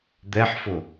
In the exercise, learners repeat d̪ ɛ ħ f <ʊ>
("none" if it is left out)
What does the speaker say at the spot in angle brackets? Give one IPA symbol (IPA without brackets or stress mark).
ʊ